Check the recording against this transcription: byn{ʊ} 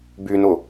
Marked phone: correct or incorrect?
correct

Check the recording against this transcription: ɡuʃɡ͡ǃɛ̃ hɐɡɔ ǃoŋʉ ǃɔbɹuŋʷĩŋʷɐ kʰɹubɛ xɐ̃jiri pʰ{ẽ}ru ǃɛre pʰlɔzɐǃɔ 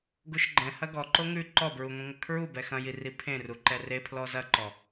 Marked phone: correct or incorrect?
correct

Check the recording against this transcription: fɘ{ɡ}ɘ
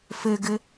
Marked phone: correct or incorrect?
correct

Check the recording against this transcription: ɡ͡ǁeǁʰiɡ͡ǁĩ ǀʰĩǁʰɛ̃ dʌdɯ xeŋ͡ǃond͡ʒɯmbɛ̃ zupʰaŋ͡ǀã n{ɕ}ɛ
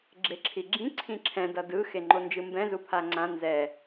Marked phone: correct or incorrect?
incorrect: z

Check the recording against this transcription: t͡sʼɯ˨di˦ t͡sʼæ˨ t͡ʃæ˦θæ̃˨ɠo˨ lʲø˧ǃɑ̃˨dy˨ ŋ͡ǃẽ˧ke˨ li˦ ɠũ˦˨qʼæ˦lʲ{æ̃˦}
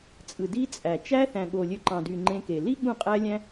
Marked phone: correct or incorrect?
correct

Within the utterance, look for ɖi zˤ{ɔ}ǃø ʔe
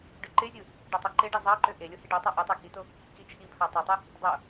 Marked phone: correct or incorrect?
incorrect: ɑ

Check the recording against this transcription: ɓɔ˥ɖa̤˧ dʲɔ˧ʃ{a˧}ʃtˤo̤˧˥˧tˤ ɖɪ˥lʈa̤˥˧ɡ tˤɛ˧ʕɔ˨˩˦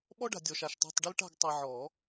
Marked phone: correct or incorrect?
correct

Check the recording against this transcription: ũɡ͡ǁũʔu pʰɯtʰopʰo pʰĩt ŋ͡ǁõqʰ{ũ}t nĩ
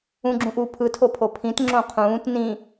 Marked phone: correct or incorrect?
incorrect: ũː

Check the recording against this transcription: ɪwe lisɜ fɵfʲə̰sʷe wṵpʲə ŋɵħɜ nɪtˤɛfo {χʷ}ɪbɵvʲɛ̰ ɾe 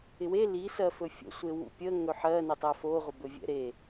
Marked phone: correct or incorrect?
incorrect: ʁʷ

